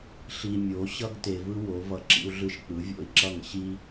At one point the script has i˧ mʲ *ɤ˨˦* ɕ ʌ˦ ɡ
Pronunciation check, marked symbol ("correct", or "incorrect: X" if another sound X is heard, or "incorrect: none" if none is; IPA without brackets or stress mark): incorrect: o˨˦